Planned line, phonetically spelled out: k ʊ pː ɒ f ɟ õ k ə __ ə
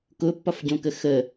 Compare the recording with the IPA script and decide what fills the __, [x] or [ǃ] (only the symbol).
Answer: x